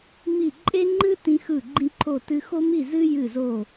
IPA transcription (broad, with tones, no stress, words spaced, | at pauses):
mi˥˨ ǃʼe˥ŋ͡ǃɨ˥ tĩ˥xɯ˥˨ ɡ͡ǃĩ˥ǃʰo˥˨tɨ˥ xo˥mi˥˨zɨ˥ jɨ˥˨zo˥˨